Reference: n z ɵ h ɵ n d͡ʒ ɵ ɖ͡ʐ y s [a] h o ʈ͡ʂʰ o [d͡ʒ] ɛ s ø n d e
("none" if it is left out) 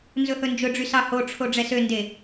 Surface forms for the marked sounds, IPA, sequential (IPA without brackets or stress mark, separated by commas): ɑ, ɖ͡ʐ